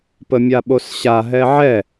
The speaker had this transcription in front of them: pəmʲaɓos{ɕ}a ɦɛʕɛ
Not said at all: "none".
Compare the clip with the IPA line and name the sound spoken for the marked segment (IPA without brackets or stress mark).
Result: ɕ